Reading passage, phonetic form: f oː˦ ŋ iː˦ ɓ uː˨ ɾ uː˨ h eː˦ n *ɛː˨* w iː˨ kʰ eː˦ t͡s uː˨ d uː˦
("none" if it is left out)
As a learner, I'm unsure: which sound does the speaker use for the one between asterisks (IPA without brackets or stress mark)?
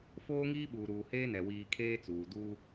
ɛ˨